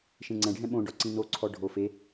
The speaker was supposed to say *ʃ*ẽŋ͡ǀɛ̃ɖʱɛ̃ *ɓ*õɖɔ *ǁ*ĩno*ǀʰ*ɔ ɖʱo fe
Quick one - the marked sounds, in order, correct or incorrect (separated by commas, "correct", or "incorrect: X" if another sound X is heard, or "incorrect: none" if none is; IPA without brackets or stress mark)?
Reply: correct, correct, incorrect: ǀ, correct